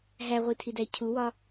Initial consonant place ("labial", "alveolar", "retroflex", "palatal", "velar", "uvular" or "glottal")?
glottal